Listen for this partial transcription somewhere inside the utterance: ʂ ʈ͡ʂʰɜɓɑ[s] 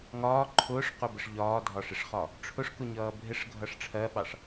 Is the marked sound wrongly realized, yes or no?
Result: yes